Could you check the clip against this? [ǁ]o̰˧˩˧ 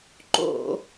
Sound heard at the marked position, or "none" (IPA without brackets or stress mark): ǃ